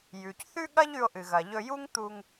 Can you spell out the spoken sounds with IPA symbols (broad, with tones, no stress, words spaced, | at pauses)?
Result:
jʉ˩cθʉ˥ɠɐ˥ʎ ʉ˧o̯ʔɨ˩ɣɐ˩ ʎɵ˧ju˥ŋt̪u˧ŋ